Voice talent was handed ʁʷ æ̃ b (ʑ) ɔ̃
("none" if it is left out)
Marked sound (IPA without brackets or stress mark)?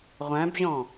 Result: ʑ